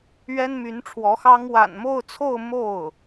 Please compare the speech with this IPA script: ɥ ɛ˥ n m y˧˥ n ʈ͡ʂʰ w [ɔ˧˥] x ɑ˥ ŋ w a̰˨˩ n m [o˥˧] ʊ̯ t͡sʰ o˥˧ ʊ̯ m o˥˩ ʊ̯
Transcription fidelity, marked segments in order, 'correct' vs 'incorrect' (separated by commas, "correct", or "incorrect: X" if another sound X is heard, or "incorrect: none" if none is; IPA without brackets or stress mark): correct, correct